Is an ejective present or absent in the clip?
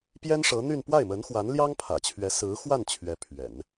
absent